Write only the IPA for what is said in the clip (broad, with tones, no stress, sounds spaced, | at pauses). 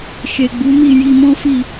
ʃ e˨ ɡ͡b u˨˦ m i˦˨ j i˧ m ɔ̃˦ f i˦˨